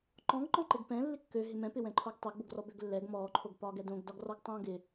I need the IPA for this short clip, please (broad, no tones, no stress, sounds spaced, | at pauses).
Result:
ǃ ɔ̃ ɡ ǃ ɔ̃ ǃ ɪ ɡ p ɛ̃ lː ɪ kː ø ɦ ɪ m ɛ̃ p ɪ w ɛ̃ ǃʰ o ɡ tˤ ɛ ɡ b o ɡ r ɔ b ø ɡ lː ɛ ɡ m ɔː ǃʰ o ɡ p ɒː ɡ ɛ d õ ɡ d ɒ ɡ r ɔ ɡ tˤ õː ɡ ɪ